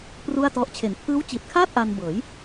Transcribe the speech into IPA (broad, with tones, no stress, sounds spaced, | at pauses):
p r u˥˩ a̯ t ɔ˦˥ ʔ t͡ɕʰ e˩˦ n pʰ ɯː˦˥ w t͡ɕ iː˨˩ t̚ kʰ aː˥˩ t̚ ʔ a˧ n b ɤː˩˦ j